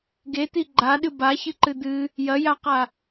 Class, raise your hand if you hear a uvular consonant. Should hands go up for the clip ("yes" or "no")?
yes